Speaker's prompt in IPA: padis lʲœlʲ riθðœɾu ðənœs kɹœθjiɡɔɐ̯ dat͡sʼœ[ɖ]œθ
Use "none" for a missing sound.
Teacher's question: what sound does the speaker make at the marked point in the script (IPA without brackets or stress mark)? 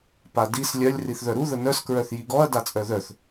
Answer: ð